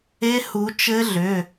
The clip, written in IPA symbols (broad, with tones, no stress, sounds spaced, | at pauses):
e˦˥ h u˨˦ t͡ʃ ɘ˦˥ ɮ ʏ˩˧˩